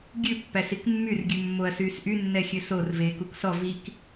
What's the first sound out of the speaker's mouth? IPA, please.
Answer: ɡʲ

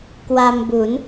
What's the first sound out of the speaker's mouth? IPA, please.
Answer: k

